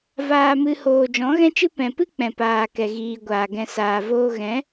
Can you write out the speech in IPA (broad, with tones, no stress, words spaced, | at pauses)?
vaː˧mɨ˧ hoː˨d͡ʒɔ̃˨˦ɣɛ̃˦t͡ʃɨ˦ pɛ̃˨pɨ˦ k͡pɛ̃˨paː˨ kɛ˨ɣiː˨ɡʷaː˨ ɡɛ̃˨saː˨voː˧ɣɛ̃˨˦